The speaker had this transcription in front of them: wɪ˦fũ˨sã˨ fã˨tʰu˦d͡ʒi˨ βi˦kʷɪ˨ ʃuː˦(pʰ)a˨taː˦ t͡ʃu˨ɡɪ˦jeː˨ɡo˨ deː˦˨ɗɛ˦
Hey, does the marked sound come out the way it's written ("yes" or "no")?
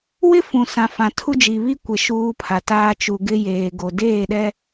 yes